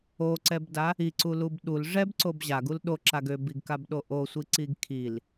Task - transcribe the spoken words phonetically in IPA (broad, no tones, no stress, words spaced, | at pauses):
oǀɛbda | iǀulub ɗul ʐɛbǀob ʑaɡul ɗoǁaɡ øbiɡkabɗo ʔosʷiǀiɡ kʰil